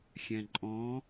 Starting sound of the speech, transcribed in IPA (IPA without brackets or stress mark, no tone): xʲ